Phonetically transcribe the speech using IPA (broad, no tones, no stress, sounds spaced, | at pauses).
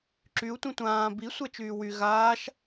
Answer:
ǁ y u̯ tʷ ĩ tʷ ãː b i sʷ ɛ t͡ʃ yː w y ɣ aː ʃ